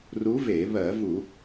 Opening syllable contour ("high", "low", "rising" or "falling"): rising